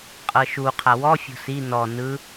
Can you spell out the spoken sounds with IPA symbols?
qʼ ɤ ʃ u qʰ a w ɔ fʲ o̤ s i n ɔ n ɯ

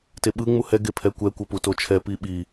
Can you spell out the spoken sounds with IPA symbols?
t e ɓ ɯ ŋ͡m u h ɛ ɡ e pʰ ɛ kʷ ɛ kʷ ʌ p u t o t͡ʃʰ ɛ p i ɓ i

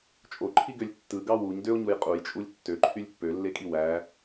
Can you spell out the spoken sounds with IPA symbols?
t͡ʃʼ o ǃʰ i ɡ ø lʲ tː ɯ ɡ ɑ w u ɲ d ø o̯ ɲ u j qʼ u j t͡ʃʼ u lʲ tː ø ǃʰ y lʲ pː ø lː e kʼ i w æ

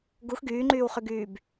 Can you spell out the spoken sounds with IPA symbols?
ɡ u x ɡ yː ŋ͡ǃ yː w χ y ɡ yː b

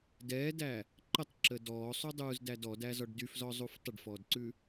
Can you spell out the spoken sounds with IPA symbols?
d ɛː d æ | ǃ ə tˤ ǁ ə d ɔː sˤ u dˤ uː z d æ d ɔ d æ z ɔ ɖ d y f z ɔ zˤ u f tˤ ə ɖ f ɔː d ǀ ʉ

